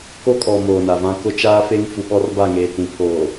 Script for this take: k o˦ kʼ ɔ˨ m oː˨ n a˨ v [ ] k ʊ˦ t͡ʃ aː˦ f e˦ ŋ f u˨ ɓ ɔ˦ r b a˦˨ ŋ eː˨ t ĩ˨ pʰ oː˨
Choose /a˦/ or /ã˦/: ã˦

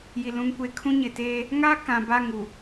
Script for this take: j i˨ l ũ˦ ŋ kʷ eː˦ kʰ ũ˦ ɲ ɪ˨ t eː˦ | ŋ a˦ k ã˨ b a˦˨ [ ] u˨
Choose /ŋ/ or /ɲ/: ŋ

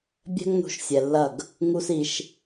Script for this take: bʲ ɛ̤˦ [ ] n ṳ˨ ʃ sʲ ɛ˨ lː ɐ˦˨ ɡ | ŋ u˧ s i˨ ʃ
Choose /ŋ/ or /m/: ŋ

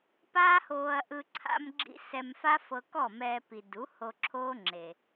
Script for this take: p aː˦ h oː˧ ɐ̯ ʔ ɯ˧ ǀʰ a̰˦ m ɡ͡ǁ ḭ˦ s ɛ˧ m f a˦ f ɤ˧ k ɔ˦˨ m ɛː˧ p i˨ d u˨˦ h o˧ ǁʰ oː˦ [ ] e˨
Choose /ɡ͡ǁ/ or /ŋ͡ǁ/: ŋ͡ǁ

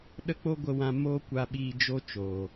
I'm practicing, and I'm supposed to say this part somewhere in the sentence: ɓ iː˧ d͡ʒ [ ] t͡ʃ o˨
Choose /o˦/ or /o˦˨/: o˦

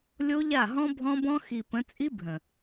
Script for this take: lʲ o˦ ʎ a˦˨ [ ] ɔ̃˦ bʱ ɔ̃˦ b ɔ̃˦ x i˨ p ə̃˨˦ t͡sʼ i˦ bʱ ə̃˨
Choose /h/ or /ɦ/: ɦ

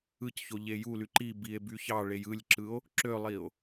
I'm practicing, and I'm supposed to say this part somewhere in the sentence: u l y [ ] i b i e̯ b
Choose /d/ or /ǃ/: ǃ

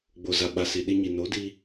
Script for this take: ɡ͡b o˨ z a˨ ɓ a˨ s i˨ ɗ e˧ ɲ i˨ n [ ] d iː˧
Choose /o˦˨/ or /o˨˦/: o˨˦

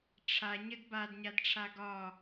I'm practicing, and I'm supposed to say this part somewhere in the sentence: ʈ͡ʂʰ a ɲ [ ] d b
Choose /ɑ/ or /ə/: ə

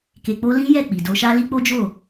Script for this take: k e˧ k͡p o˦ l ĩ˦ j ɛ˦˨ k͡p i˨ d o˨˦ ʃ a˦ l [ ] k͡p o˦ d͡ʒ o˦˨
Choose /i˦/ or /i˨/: i˦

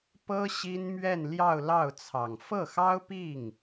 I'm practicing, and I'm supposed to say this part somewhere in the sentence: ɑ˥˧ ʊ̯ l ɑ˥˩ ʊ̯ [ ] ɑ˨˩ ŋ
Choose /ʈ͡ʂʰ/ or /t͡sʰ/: t͡sʰ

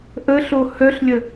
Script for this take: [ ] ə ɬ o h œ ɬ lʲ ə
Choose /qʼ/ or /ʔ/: ʔ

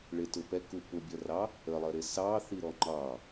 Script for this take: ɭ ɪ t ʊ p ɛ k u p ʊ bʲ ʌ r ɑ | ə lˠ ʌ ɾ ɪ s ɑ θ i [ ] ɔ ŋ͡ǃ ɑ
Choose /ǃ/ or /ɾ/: ɾ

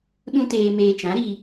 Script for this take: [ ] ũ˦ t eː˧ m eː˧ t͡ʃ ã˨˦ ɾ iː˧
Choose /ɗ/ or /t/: ɗ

